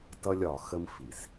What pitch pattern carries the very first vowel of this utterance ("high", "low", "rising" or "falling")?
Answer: high